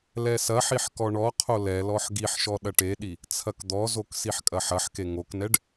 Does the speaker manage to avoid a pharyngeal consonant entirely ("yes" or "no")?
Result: no